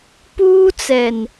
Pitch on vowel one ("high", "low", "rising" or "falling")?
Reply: high